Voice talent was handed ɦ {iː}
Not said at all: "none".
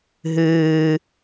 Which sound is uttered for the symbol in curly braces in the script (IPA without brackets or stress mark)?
ɨː